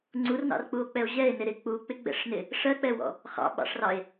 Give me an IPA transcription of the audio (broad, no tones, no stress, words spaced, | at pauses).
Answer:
ŋ͡ǀurnɑ̰rk͡puo̯k͡pɛo̯ ʑɛe̯nɪ ɾɪ k͡puk͡pɪɡ͡bɛ̰ʂnɪ | ʂɜk͡pɛwɔ̰ | χɑ̰ɓɑ̰ʂrɑe̯